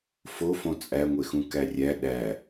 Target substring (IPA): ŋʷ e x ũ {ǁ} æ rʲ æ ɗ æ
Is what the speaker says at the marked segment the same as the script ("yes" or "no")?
no